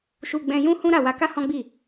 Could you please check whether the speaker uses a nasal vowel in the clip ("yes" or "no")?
yes